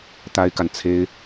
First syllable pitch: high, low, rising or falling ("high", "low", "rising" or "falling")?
high